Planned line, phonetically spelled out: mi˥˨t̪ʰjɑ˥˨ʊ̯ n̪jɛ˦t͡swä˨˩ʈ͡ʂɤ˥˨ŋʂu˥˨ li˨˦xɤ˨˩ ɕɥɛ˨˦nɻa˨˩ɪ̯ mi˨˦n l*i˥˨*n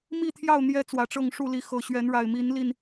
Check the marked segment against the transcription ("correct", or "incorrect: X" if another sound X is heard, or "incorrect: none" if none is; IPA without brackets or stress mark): correct